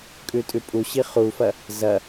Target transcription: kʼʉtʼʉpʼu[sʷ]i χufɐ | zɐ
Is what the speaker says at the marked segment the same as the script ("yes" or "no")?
no